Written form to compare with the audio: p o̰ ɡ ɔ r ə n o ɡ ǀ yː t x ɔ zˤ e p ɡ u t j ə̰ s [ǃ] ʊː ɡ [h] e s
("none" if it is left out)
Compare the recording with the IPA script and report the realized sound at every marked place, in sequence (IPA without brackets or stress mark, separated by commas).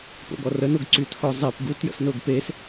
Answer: n, p